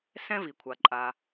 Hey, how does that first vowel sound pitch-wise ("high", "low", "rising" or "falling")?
high